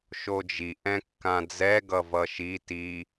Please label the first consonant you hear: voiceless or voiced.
voiceless